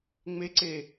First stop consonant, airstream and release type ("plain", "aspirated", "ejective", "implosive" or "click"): click